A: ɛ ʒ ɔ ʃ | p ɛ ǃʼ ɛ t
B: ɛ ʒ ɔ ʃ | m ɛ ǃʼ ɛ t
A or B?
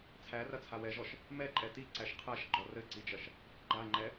B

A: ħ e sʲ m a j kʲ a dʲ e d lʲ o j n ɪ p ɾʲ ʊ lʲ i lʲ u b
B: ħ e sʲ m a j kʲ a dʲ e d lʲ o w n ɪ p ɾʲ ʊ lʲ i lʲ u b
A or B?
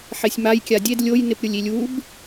A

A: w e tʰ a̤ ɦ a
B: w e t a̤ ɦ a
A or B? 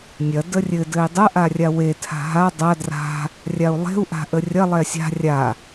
A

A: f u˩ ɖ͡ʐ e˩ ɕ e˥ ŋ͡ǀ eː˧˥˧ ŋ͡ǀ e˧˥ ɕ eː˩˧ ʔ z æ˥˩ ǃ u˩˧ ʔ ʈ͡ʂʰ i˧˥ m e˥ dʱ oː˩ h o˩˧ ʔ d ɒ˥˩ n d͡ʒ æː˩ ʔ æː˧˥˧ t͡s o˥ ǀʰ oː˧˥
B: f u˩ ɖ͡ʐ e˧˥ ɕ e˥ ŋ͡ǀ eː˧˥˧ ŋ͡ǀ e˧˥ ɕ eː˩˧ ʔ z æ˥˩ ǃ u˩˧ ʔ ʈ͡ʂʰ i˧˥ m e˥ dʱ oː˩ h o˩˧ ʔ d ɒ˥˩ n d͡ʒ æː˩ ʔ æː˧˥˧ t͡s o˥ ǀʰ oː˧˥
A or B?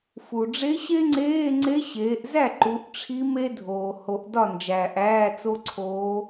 B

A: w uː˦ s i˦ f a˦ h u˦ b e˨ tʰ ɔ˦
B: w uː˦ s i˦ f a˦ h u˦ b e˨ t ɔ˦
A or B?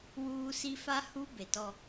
B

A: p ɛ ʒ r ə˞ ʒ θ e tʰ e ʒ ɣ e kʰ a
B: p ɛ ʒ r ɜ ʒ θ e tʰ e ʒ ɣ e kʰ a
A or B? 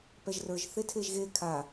A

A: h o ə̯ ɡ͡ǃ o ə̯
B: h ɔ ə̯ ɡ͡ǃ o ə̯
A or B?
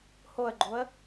A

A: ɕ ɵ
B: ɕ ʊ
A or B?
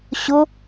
B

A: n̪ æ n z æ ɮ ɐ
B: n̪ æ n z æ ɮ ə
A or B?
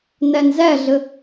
B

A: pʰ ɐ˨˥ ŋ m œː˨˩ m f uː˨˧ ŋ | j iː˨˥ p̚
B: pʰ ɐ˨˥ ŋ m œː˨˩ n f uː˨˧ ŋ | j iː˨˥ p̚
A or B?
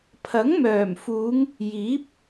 A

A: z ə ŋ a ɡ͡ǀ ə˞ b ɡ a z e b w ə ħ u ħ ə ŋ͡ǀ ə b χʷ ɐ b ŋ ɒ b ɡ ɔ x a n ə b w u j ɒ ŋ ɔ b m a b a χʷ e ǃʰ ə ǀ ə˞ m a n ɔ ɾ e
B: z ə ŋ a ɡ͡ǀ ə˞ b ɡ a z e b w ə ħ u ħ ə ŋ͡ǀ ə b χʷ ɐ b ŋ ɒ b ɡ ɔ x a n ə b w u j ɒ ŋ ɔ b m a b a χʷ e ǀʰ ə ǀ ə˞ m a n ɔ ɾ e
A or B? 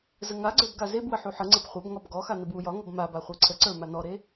B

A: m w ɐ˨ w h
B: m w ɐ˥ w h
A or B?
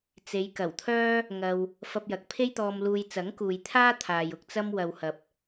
A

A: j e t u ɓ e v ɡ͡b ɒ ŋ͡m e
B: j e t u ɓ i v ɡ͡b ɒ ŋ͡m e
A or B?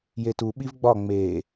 B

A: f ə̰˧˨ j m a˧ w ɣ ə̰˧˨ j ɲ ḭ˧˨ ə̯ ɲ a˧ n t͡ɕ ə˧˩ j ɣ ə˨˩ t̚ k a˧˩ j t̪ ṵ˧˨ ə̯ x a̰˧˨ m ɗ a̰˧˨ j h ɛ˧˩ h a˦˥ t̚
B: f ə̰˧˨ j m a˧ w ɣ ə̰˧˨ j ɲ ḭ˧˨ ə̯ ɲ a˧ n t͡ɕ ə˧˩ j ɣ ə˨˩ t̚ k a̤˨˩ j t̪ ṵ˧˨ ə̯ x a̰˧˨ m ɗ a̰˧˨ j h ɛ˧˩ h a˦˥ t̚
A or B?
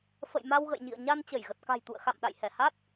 B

